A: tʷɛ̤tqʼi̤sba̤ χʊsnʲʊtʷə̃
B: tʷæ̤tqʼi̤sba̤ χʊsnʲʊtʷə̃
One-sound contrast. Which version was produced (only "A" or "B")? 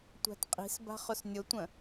B